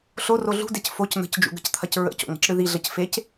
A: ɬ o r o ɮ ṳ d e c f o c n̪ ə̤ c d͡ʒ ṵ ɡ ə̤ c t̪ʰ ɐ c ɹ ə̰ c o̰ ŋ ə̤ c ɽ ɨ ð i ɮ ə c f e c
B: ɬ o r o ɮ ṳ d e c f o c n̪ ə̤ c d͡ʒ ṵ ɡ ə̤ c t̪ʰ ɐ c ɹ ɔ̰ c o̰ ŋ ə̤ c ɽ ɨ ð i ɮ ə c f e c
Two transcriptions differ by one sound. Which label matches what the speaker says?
A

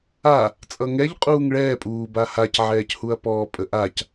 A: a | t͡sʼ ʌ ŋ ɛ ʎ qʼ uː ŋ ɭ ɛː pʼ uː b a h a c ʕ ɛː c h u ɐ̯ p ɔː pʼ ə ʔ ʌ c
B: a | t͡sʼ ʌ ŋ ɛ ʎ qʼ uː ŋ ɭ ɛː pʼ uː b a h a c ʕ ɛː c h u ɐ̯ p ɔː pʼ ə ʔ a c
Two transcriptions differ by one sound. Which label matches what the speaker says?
B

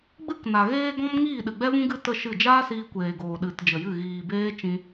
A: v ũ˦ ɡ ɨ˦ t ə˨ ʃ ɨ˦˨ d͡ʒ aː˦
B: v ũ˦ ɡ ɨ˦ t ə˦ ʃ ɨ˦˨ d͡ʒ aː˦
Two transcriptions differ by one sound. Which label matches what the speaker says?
B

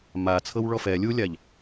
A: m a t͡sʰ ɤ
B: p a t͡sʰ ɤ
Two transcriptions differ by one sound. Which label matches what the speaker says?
A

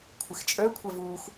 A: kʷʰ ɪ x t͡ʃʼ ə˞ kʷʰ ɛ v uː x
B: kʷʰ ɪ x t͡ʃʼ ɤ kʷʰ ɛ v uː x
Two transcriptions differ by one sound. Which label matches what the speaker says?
A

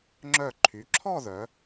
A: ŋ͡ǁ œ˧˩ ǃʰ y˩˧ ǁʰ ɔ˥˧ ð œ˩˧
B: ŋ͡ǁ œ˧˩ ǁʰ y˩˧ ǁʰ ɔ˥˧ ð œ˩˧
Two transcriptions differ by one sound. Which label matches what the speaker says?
A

